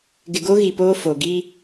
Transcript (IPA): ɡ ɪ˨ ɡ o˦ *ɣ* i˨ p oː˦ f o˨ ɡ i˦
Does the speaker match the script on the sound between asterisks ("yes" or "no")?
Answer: yes